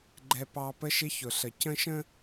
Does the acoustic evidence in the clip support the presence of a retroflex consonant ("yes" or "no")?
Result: no